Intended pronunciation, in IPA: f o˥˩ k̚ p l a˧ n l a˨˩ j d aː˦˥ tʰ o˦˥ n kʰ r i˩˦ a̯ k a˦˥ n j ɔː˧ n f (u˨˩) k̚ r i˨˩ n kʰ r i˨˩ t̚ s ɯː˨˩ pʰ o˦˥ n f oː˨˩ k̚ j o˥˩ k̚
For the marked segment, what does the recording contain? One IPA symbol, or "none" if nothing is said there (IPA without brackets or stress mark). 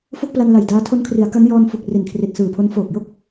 u˨˩